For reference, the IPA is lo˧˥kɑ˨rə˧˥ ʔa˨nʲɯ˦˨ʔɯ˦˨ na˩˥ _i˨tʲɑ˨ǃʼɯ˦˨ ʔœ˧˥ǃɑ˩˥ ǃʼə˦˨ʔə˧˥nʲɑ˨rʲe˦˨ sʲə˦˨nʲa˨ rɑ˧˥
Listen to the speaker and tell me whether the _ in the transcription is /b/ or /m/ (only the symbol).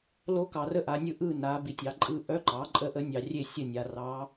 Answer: b